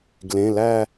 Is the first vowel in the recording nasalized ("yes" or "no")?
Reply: yes